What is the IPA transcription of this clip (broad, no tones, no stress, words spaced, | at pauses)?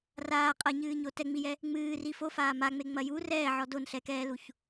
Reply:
raː qʼɐɲɨːɲo tɛŋ͡mijɛ | ŋ͡mɨːri fofaː maŋ͡meŋ͡mɐ ju rɛːʕɔ donɬɛkɛːluç